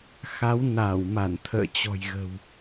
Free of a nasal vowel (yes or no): yes